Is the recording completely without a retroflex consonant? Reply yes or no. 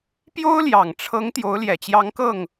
no